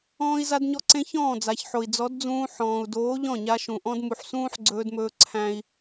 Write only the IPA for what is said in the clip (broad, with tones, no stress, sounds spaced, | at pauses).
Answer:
ɔ̃ː˧ i̯ z a˧ d ɲ ɔ˧ ǀ ẽ˧ ç ɔ̃ː˦˨ d͡z a˨ ç ħ o˨ i̯ d͡z ɔ˨˦ d d͡z ũː˧ ħ ɔ̃ː˨ u̯ d oː˨˦ ʎ ɔ̃˦˨ ɲ a˧ ʃ ũ˨ ʔ ɔ̃˧ d m u˨ ħ s ũː˦ ħ ɡ͡ǀ ɵː˧ d m ɵː˧ ǀʰ æ̃˧ i̯